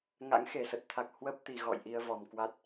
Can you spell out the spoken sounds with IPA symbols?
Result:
ŋa̰˧˥ŋxe˧˩sə˨˩t̚t̪ʰa˨˩k̚ hwə˦˥p̚t̪i˨˩ɣɔ̰˧˨j ʔi˧ə̯vɔ˨˩mkwa˦˥t̚

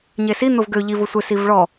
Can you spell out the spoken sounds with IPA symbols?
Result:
ɲesi n̪ʊvɡø ʎivʊ sʷesiv ɭɔ

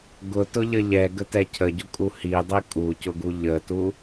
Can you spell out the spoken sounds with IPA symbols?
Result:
ɡʊtʊʎə ʎɛɡətɛ cʰəɟʊkʼu hidˤi kʼucʊɡu ʎətu

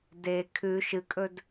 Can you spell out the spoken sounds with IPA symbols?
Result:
de kʰʉ ʃɨkʼɵd

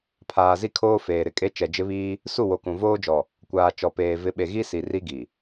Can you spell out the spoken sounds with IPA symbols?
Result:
pʰaː˨zi˦kʰoː˦ feː˨ɾɪ˨kʼe˦ t͡ʃɛ˨d͡ʒɪ˦βiː˦ | su˦˨wo˨kũ˨ voː˦d͡ʒɔ˨ | kʷaː˨ t͡ʃɔ˨peː˨ vɪ˨˦ɓe˨ ɣi˦si˨ ri˦ɡi˨

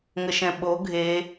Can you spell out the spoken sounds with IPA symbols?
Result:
ŋəʃɛ̃ɓo ɡʱe

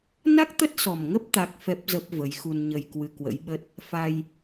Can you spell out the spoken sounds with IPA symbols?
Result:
na˦˥k̚ t̪ə˦˥t̚sɔ˨˩mŋə˦˥p̚ t̪a˦˥k̚ fɛ˦˥p̚ zə˦˥p̚ və˨˦jxu˧nɲə˧j kwɨ˧kwə̰˧˥jɓə˦˥t̚ | fa˧j

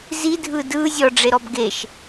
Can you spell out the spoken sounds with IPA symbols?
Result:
zidʱɯ dɯ zʲɔɖ͡ʐeɾɔb ɡeʃ

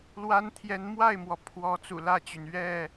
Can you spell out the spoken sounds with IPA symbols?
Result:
lwa˦n t̪ʰjɛ˨˦nmwa˥˨ɪ̯mwɔ˩ pʰwɔ˨˦ t͡sṵ˨˩lä˥˨t͡ɕy˩n ɥɛ˥˨

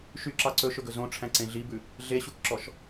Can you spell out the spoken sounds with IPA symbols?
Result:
ʃyǁɑ ǀɵʃɵɡɵ zõʈ͡ʂʰæ̃ǀẽ ɮibʉ | ɮeɕukǁɔʃ

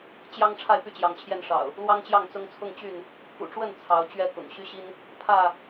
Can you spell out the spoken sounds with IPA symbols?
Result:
t͡ɕjɑ˦ŋ ʈ͡ʂʰa˥˨ɪ̯py˥˨t͡ɕjɑ˨˦ŋt͡ɕʰjɛ˥˨n ʂɑ̰˨˩ʊ̯ | lwɑ˦ŋt͡ɕjɑ˥˨ŋ t͡sʊ˦ŋ t͡sʰʊ˥˨ŋ t͡ɕy˥˨n | kṵ˨˩ʈ͡ʂwə˥˨n t͡sʰɑ˨˦ʊ̯ t͡ɕɥɛ˥˨kʊ̰˨˩ŋ ɕy˦ ɕi˦n | pʰä˥˨

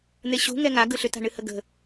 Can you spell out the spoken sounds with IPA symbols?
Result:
n̪eɕṳ ŋɛŋa ɡɯɬʏta̤ ɳɨhəɡə̤

